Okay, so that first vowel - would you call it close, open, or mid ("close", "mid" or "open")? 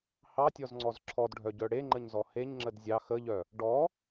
open